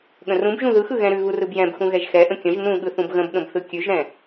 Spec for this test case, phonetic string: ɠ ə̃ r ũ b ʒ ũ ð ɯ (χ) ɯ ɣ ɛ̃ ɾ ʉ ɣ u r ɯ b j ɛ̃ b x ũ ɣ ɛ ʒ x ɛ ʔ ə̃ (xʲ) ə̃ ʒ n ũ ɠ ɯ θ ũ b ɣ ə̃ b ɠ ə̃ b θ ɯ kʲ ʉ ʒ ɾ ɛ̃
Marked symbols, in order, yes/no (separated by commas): no, no